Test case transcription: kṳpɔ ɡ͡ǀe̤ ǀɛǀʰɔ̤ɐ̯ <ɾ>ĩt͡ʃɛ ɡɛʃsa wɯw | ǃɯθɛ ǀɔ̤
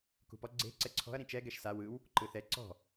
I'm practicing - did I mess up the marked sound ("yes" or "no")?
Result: no